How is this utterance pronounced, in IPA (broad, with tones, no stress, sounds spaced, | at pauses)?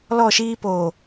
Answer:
l ɔ˦˨ ʃ iː˦ p oː˨